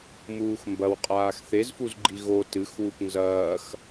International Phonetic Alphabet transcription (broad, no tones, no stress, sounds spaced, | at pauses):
m uː x m b ɐ w qʼ aː x θ e z f u z ɡ͡ǃ i ɣ o t ɨ x w u p n z ɐː x